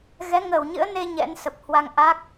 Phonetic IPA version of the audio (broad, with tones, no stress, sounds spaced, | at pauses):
ɣ ɛ˨˦ ŋ əː˧˩ w ɲ ɨ̰˧˥ ə̯ n e˧ ɲ ɛ̰˧˥ n s ə˨˩ p̚ h w a˧ ŋ ʔ a˦˥ k̚